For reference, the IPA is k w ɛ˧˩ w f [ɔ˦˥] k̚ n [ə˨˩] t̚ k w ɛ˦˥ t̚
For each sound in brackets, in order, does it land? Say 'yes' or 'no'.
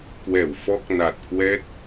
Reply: yes, no

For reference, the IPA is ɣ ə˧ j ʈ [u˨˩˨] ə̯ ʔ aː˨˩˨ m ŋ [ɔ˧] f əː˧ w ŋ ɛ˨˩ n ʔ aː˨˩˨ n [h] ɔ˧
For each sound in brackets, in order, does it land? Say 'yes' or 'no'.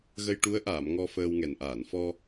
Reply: no, yes, no

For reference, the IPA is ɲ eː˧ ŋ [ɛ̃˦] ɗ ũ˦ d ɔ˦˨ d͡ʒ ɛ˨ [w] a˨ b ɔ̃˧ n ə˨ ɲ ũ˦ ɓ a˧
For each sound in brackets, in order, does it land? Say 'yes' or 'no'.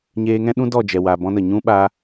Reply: yes, yes

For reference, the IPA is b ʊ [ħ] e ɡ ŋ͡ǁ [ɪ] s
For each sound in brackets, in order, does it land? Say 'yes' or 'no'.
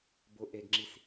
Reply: no, no

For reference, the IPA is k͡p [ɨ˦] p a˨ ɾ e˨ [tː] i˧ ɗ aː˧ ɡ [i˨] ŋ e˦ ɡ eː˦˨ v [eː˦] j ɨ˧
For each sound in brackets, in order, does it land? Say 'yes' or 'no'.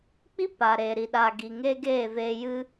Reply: no, no, no, no

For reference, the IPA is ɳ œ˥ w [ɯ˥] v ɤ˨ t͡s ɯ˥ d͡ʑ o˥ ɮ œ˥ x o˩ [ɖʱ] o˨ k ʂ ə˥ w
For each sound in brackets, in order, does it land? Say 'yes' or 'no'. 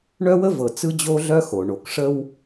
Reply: no, no

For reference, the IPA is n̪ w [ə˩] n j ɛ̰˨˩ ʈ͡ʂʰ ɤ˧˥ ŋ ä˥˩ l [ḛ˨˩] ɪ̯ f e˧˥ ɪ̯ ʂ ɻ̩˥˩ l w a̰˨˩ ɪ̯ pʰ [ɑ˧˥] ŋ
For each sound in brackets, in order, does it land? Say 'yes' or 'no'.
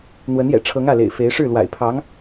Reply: no, yes, yes

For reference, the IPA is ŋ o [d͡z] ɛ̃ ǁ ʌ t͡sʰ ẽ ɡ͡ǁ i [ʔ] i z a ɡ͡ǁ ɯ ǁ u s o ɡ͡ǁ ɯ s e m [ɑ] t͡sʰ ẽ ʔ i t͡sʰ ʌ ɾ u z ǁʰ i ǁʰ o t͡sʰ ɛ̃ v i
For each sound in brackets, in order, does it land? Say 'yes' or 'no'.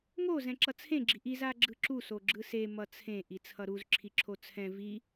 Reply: no, yes, no

